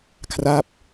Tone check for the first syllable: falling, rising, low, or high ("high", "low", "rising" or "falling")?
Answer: falling